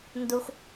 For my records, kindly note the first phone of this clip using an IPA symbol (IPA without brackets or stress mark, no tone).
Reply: n